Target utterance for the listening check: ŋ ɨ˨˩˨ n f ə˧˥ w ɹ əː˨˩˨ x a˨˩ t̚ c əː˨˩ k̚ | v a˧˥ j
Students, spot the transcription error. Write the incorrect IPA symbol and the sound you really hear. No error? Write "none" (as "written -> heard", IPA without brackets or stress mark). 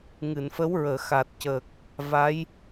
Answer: none